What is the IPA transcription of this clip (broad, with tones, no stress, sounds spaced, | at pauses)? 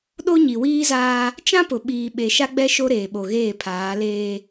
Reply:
ɗ o˦ ɲ i˨ w iː˦ z aː˦ | t͡ʃ ã˦ p ʊ˨ ɓ iː˨ ɓ e˨ ʃ a˦ ɡ͡b ɛ˦ ʃ o˦ ɾ eː˨ ɓ o˨ ɣ eː˦˨ pʰ aː˨˦ l eː˦